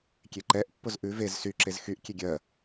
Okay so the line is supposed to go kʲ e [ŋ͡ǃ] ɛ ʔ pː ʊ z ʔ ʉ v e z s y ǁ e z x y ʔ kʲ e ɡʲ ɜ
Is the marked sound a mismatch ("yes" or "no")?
yes